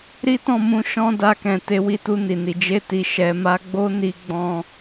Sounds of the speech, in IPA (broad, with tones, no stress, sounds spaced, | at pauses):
ɾ i˦ t ɔ̃˦˨ m ũ˧ ʃ ɔ̃˦ d a˧ k ɛ̃˨ t e˨˦ w i˧ t u˧ n i˨ n i˨ d͡ʒ e˧ t i˨ ʃ ɛ˨˦ m a˦ ɡ͡b o˦ n i˧ ɡ͡b ɔ̃˧